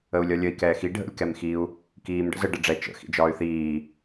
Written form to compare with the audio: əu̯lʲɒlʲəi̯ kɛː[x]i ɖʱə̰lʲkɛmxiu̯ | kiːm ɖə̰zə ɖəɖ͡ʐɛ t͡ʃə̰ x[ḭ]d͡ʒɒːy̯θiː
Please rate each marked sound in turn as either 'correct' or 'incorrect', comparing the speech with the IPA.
correct, correct

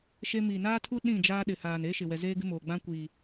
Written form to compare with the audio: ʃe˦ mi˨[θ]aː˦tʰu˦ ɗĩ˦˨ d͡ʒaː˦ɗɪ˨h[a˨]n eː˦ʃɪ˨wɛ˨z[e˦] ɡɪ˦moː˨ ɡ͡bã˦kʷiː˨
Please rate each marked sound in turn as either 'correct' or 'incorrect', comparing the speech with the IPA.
incorrect, incorrect, incorrect

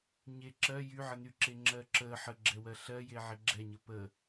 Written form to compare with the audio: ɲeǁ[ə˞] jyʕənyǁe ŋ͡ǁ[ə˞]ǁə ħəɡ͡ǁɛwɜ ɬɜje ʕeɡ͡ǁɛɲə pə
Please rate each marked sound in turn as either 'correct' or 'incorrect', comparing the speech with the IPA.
incorrect, incorrect

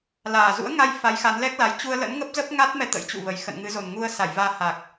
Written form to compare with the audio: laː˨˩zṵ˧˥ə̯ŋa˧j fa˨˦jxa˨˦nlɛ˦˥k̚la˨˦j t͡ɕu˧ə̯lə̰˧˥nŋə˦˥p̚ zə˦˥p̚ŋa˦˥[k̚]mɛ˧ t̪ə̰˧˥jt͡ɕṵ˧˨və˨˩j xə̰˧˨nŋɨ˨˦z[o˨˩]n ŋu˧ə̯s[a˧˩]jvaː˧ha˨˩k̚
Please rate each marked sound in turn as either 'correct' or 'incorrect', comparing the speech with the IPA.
incorrect, correct, correct

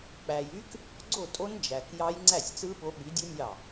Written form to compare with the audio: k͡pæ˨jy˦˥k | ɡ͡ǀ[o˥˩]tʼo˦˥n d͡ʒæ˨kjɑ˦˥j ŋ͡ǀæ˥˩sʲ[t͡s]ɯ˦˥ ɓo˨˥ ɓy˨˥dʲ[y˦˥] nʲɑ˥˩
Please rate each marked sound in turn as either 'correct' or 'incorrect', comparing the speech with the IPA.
correct, correct, incorrect

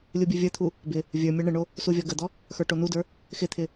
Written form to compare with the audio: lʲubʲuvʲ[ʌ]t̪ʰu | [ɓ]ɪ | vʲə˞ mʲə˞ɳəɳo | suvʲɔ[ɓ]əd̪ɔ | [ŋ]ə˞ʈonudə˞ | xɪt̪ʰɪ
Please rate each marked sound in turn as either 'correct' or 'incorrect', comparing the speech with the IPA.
incorrect, incorrect, incorrect, incorrect

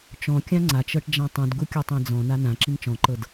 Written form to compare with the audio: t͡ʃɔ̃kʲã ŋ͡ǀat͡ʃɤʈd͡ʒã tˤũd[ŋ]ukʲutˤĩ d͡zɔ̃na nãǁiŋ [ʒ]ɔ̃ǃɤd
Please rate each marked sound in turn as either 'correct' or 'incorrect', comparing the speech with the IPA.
incorrect, incorrect

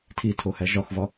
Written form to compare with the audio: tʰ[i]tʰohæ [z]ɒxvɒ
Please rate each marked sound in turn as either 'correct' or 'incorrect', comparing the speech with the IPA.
correct, incorrect

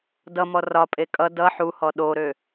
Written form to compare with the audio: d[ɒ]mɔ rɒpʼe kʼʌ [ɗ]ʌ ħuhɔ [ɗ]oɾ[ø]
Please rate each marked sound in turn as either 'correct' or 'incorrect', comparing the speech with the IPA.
incorrect, incorrect, correct, correct

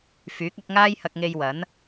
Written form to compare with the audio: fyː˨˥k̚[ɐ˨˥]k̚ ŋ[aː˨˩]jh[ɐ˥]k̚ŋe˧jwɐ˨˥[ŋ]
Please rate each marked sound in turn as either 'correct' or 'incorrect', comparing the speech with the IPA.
correct, incorrect, incorrect, incorrect

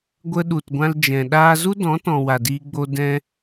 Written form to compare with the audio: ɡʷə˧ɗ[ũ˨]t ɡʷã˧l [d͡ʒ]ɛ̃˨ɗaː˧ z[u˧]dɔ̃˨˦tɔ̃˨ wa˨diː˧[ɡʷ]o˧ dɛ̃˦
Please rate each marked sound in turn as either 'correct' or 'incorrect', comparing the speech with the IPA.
incorrect, correct, incorrect, incorrect

